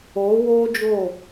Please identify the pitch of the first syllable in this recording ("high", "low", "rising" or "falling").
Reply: rising